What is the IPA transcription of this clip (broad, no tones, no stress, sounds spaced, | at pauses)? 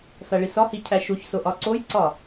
f æ ɭ i s ɒ h i cʰ æ ʃ u ç s o ʔ ɒ ǀ o j ǀ ɒ